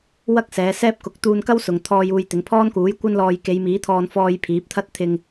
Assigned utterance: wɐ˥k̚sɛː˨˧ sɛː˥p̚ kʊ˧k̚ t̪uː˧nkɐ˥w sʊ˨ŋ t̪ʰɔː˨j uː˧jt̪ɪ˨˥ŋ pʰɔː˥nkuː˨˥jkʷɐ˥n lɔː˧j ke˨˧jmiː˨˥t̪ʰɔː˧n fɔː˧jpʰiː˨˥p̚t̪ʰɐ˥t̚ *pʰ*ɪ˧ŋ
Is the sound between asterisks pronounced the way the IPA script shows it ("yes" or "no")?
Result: no